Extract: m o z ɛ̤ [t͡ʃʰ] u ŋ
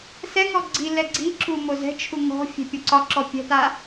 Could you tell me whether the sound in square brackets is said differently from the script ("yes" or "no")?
no